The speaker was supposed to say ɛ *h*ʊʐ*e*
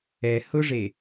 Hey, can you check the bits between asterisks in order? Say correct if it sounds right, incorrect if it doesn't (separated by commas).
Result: correct, correct